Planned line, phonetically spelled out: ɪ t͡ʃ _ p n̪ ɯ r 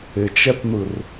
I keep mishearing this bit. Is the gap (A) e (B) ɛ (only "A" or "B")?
B